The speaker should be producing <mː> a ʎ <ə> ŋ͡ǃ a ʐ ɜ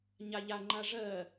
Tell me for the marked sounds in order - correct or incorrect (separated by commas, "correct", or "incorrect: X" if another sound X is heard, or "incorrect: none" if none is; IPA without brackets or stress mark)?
incorrect: ɲ, incorrect: a